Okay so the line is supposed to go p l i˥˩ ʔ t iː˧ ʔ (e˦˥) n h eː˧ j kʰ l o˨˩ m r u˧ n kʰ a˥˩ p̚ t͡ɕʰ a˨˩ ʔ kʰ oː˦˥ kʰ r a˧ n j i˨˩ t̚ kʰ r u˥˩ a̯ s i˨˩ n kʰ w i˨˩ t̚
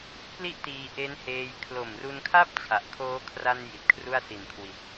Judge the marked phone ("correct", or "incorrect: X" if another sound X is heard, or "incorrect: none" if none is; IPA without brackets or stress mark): correct